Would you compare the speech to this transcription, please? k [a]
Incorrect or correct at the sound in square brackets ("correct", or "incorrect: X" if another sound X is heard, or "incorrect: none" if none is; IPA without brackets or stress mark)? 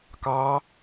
incorrect: ɑ